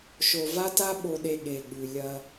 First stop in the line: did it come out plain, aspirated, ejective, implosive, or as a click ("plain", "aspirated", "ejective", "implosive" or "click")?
plain